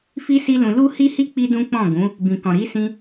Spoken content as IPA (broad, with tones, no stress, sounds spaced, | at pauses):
f i˦ s i˦ l ũ˧ l u˦ h i˦ h i˦ k͡p i˦ d ũ˦ k͡p ɔ̃˦˨ ɡ ũ˨˦ | b ĩ˨ k ɔ̃˨ ɾ i˨˦ s ĩ˧